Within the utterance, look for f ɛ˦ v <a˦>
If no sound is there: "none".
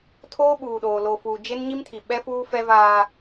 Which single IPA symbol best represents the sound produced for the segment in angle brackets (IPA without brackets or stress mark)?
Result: aː˦